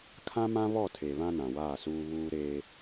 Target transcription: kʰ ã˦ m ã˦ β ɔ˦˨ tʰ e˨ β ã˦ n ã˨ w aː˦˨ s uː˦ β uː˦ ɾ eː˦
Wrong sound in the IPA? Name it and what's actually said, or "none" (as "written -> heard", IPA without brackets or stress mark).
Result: none